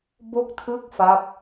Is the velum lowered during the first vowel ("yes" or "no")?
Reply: no